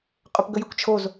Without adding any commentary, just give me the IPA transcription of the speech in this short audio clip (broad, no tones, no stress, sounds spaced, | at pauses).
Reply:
qʼ ʏ p ɡ ə j ə kʷ t͡ʃʰ o z